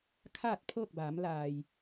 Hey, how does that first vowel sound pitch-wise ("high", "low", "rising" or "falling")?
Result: falling